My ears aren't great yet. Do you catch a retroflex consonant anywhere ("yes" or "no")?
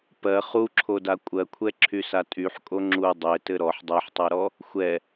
no